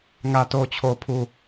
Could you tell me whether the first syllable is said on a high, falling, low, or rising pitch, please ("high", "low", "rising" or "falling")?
low